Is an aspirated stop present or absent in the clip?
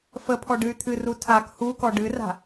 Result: present